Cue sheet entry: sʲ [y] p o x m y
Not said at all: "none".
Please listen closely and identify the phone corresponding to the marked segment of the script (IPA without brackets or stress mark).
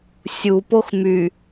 u